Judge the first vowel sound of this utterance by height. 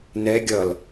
mid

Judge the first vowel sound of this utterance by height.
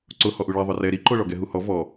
high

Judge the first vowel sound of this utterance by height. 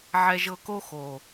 mid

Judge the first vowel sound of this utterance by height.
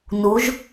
high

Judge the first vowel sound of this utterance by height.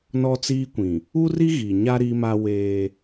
mid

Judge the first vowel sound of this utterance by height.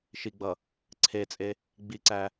high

